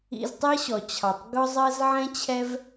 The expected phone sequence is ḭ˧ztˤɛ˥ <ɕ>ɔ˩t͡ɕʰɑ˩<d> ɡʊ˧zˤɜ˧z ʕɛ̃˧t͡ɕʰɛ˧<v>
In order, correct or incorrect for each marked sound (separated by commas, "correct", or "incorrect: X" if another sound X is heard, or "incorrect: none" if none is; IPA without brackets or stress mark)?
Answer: correct, incorrect: tˤ, correct